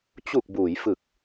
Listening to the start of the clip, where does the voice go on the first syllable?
low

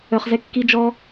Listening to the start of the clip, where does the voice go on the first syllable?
low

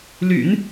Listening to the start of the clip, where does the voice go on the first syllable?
low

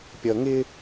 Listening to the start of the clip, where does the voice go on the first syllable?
low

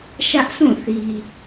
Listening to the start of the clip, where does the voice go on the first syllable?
high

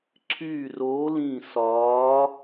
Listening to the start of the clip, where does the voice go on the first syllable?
falling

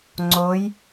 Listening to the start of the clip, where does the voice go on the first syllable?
rising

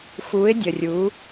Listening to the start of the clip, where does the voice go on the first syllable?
rising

